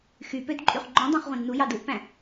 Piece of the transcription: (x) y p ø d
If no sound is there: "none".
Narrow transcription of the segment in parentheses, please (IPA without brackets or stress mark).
x